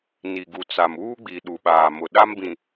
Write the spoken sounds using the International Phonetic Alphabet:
ni˨ɡu˨t͡sa˨m uː˦ɡ͡bi˨ ɗu˨ɓaː˨ mʊ˨ɗa˦mbĩ˨

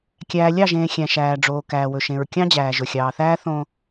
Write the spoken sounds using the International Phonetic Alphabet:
kʲæː˨ lʲɑ˦˨ʒẽː˨ xʲæ̃˨ʃæː˨ɖ͡ʐoː˨ kæː˨wɵ˨ʃẽ˨ɹ kʲɑ̃˦d͡ʑæː˨ ʒɵ˨xʲɑː˨θæː˦ θõ˨

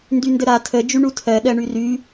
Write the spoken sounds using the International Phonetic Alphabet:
ndyndəɾa tʰə d͡ʒyɳutʰɜ ɗɜɳyry

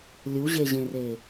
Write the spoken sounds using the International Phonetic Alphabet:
lʲuʑeʑẽre

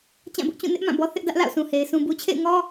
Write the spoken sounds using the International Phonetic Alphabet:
t͡ɕã˦˨bʊ˦ʔt͡ɕũ˦˨ nɪ˦ʔ mã˦˨bɔ˦ θɪ˦ʔdä˦ʔla̰˦˨ʊ̯ sũ˨he˨ɪ̯ sũ˨bu˨t͡ɕʰḛ˦˨ɪ̯ŋɔ˦

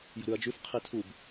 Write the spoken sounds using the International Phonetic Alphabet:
jə̤ɾʉɐ̯d͡ʒʉf qʰitʰub

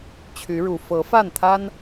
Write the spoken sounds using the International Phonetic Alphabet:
t͡ɕʰy˨˦ɻu˨˩ fɤ˨˦fa˥˨nt̪ʰa˦n

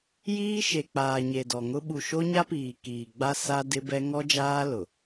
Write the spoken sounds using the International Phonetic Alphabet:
jiː˦ʃe˨k͡paː˨ ɲe˨dɔ˨ŋʊ˦ ɓu˨ʃo˦ɲa˦piː˨ kiː˨ɡ͡ba˦ sa˦ dɪ˦bɛ˦ ŋɔ˦d͡ʒaː˦ lʊ˨

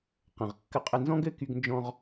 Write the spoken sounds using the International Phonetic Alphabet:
qə̃˩ʁ kːə˧qʼə˧nzɔ̃˥ɡ ɘ˧ky˧ɡnd͡ʒɔ̃˧ʁ

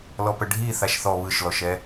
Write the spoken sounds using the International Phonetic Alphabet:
lɔpəɖʱi θaʃθɔ βɯʃlɔʃɛ

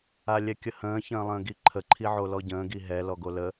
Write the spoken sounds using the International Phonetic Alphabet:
alʲɛkʲəhə̃ː çə̃ːlˠə̃ːɡiǃʰə ǃʰiʕolɔɟə̃ː ɡiɦɛ lɔɡolə

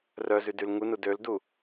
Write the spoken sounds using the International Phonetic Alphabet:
rœzydyl ŋunu døldu

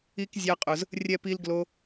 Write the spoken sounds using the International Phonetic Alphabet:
i˦kzʲa˦qʼʊ˧z | rʲɛ˧ pi˦lɡlo˦

